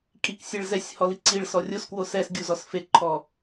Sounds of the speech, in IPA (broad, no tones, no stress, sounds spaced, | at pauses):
kʼ i k sʲ e ɭ z ɛ sʲ h ɔ l i ǀ i ɭ s ɔ rʲ o s k w o s ɛ s ɡʲ u z ɔ s f e ǃʰ ɔ